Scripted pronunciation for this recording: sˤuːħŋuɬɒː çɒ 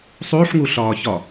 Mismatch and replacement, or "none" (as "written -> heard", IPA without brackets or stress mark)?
none